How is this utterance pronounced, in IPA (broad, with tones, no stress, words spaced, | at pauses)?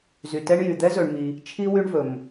zy˨tɛ˦ɳjy˨ d̪ɛ˦zɵ˨ɳmi˨ | t͡ʃʰi˦wy˦ɳvɵ˨m